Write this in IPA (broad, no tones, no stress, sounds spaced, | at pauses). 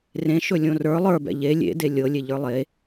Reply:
r ẽ ʃ ɵ lʲ õ r ə˞ lˠ ə˞ b ɛ̰ ʎ e lʲ ḛ d e lʲ ɤ lʲ e ʎ ə˞ lˠ e